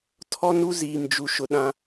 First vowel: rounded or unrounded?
rounded